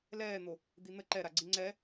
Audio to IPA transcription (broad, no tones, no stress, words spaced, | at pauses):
lɛːn̪o | d̪in̪ə ǃɛɾaɡ͡ǀi ŋ͡ǀɛ